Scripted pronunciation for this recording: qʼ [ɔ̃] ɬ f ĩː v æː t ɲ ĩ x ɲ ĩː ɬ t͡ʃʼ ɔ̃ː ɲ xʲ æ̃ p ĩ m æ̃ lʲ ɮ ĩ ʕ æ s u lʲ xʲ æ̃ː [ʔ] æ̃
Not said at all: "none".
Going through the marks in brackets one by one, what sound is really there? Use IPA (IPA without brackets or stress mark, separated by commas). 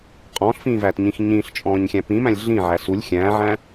ɔ̃ː, ʕ